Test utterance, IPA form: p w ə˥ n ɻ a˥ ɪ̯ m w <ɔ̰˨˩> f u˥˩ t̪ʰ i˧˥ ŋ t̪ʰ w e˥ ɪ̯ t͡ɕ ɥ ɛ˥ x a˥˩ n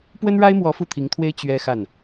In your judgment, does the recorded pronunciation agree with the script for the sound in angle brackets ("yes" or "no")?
no